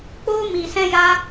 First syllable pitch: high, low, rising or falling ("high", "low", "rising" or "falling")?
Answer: high